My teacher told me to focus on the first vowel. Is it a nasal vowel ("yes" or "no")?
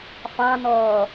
yes